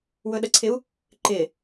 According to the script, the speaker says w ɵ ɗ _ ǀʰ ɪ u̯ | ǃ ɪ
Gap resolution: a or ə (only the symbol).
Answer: ə